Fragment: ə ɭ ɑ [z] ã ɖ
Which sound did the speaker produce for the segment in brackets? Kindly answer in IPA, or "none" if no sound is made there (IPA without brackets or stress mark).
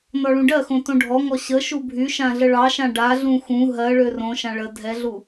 ʃ